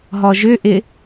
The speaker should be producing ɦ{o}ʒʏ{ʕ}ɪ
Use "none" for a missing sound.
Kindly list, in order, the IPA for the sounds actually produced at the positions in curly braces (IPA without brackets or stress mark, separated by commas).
ɔ, ʔ